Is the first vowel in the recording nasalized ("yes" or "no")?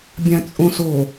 yes